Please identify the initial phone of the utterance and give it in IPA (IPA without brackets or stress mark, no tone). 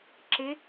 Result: ǁ